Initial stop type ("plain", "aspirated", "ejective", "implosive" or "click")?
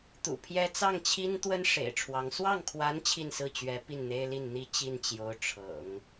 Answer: plain